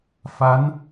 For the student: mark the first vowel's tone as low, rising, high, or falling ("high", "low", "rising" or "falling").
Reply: rising